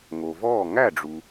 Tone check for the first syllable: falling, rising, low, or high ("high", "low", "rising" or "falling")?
low